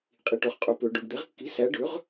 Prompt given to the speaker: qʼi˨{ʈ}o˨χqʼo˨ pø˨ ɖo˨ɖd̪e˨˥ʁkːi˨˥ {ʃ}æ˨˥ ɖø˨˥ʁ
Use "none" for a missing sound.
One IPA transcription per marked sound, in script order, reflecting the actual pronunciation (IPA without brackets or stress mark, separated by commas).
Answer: ʈ, s